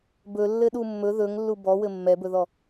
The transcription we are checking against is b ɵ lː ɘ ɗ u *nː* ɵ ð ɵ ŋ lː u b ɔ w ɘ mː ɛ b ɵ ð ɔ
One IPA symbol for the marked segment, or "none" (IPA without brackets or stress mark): mː